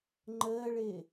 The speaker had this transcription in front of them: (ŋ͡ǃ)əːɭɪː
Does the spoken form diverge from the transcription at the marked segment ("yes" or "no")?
no